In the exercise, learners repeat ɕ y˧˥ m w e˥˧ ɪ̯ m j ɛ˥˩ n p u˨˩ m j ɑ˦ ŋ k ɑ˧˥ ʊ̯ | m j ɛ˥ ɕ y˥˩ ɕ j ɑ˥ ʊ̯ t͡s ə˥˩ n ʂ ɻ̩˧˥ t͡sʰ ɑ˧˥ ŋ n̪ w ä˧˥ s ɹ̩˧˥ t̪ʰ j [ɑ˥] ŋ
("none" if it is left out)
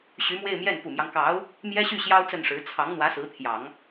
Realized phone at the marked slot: ɑ˨˩˦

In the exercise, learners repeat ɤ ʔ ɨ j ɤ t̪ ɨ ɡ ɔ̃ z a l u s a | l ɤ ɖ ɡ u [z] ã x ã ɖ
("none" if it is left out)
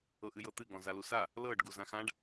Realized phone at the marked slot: z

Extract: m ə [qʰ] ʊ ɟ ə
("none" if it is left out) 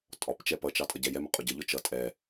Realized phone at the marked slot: qʼ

